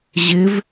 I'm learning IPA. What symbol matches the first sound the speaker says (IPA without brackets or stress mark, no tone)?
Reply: ʑ